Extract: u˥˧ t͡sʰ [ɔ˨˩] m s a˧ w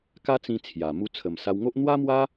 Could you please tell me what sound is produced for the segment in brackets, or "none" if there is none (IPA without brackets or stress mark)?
ə˨˩